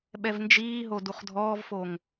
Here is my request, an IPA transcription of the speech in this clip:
ɓɛvnd͡ʒiːɦo duχdʱɔːvfoŋ

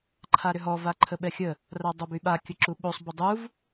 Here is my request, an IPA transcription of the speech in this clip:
ǃʰaɾʏɦɔ vaǃʰəɓɛxʲə | radˤobyɓa kʲəǁuɓosˤ bədˤuv

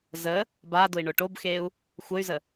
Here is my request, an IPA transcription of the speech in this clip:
zə | badʊi̯ ɳʊʈobxeu̯ | xʷəy̯zə

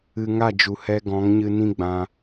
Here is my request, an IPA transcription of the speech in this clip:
ɨ˧ŋa˦˨d͡ʒu˨ hɛ˧ɡɔ̃˨˦ŋɲɨ˧ nĩ˦ ɡ͡bã˧

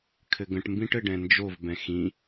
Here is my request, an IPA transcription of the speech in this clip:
kʰɘɡə̃ʈmbĩʈ ɘɖɛ̃nd͡ʒovbɛ̃ xĩ

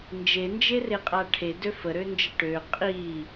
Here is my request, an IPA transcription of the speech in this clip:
nd͡ʒend͡ʒereqʼa ʈʰedø fəɾønd͡ʒə ʈø qʼi

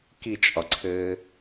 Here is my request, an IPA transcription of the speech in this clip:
kit͡ʃʼɒǀʰɘː

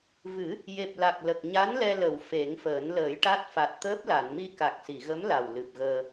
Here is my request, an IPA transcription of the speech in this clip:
vɨ˨˩˦ | je˨˩p̚la˨˩k̚ lə˨˩k̚ ɲa˧˥n lɛ˧ lə˨˩˨w fe˨˩˦ŋfəː˨˩˦n ləː˨˩˦jʈa˦˥t̚ fa˨˩t̚t̪əː˦˥p̚la˨˩˨nmi˧ ka˨˩k̚si˨˩˨ɣə˧˥m la˨˩w lɨ˨˩p̚ɣəː˧

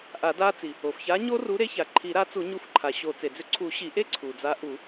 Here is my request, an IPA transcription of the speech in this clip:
ʔa˨˩˦da˦˥t͡si˩ | o˩fça˨˥ ɲo˦˥ru˨˥ɾe˨˥ça˩ ǃʰi˨˩˦ɾa˨˥t͡su˨˩˦ ɲu˨˥fǃʰa˩ɕo˨˩˦ t͡se˩d͡zʏ˨˥ ǀʰu˨˩˦ɕi˨˩˦ʔe˦˥ ǀʰu˩d͡za˨˥ʔu˨˩˦

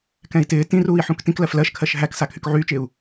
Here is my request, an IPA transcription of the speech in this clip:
kɛ̃i̯tɪː tĩruːi̯ ħũktĩk lɜflɜʃkʰɜʃ ɦæksa kʰykʕyːt͡ʃɪːu̯

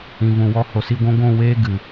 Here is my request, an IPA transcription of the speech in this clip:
ĩ˨vũ˨wɔ˧ ho˨si˧ɡʷũ˧ ɡʷũ˦˨ weː˦ ɡɨ˨

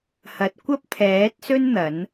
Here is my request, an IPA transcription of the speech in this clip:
hɐ˨˥t̚kʷɐ˥p̚t̪ʰɛː˨˥t̚sɵ˥n n̪ɐ˨˥n

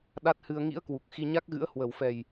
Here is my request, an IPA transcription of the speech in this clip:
ɗa˦˥t̚hɨ˧ə̯ ŋḭ˧˥ə̯kwu˨˩k̚ xi˧ɲa˦˥k̚ɣɨ̰˧˥ə̯ hwə˨˩wfɛ˨˩j

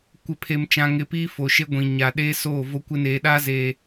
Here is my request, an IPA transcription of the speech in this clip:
kʷɪ˨pʰe˨m t͡ʃã˨ ŋɪ˨˦piː˦ fo˨ʃe˦ ɡʷĩ˨ ɲa˨ ɗeː˦ soː˦˨ vo˦kʷɪ˦neː˨ɗaː˦ zeː˨

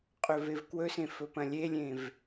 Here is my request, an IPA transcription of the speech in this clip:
qʼɵvevkwɵsẽ fɵpɐ̃lʲelʲẽv

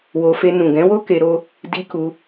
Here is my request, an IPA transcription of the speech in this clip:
wo˧fe˧ nũ˨ɡɛ̃˨˦wo˦ ke˧ɾo˦ | di˧ku˧

